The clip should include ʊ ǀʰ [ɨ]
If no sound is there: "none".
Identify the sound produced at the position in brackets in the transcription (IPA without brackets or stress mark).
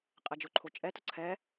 ɛ